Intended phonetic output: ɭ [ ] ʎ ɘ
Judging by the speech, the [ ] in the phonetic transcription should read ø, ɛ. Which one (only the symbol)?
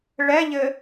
ɛ